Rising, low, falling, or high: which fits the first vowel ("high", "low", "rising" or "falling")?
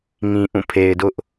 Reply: low